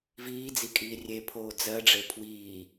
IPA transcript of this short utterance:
v iː d͡z i kʼ iː rʲ e pʰ oː d͡z ɜ ɖ͡ʐ e pʰ w iː

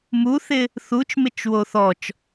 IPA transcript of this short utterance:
m u θ ɪ | θ u t͡ʃ m ɪ t͡ʃ w o θ ɔ t͡ʃ

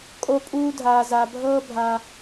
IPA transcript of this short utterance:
kʼ o˧ pʼ uː˧ dʱ aː˨ z a˨ bʱ ɤː˦ bʱ a˧

